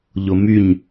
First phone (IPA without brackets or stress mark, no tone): ʎ